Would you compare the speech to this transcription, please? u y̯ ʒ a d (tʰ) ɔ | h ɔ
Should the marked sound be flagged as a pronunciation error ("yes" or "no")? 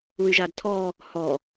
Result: no